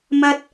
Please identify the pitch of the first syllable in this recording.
high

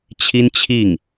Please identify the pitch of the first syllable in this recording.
high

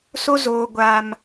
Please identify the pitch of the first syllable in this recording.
high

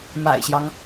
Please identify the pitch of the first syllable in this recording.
low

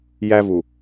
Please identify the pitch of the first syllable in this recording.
high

